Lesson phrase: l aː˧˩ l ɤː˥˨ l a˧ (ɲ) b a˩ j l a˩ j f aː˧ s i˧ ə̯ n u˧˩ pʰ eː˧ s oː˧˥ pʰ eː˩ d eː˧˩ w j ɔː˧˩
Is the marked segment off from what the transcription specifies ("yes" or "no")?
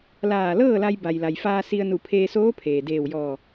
yes